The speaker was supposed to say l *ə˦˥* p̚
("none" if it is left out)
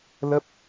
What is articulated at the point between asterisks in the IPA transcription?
ə˦˥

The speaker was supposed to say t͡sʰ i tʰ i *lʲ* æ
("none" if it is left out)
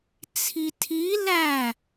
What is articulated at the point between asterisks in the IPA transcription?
l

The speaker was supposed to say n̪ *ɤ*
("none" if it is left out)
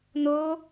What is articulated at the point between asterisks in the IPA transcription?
o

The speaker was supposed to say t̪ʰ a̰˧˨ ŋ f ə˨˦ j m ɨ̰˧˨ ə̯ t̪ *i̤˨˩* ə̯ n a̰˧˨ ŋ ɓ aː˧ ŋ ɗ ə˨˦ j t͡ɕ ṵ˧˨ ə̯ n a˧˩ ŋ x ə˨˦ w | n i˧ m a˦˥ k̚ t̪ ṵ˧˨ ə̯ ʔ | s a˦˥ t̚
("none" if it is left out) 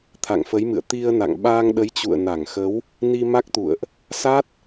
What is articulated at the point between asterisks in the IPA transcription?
i˧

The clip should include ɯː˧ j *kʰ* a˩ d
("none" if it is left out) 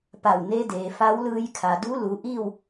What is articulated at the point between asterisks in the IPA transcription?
kʰ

